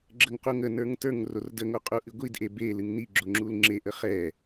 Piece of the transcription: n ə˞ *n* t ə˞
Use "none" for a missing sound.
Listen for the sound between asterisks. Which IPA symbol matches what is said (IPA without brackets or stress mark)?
ŋ